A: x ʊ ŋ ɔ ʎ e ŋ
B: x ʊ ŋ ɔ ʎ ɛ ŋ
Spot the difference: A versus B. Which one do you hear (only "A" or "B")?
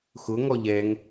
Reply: B